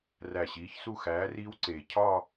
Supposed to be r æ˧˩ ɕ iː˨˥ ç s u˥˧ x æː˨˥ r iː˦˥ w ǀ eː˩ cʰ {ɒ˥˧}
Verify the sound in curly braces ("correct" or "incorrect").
correct